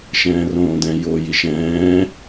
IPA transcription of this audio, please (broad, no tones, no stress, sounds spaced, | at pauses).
ʃ ɛ̃ː r õː d ɛ̃ j o j i ʃ ɛ̃ː